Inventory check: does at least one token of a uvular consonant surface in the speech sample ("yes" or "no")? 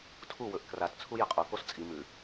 yes